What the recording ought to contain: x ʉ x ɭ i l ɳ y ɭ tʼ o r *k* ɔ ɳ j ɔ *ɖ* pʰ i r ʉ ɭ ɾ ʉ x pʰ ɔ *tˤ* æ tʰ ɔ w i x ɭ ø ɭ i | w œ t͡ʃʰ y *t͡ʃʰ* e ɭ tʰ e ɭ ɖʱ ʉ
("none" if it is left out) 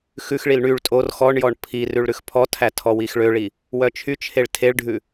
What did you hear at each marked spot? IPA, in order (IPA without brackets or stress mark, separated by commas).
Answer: x, ɳ, tʰ, t͡ʃʰ